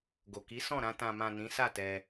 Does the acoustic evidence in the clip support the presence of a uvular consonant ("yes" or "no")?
no